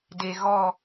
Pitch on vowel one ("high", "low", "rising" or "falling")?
low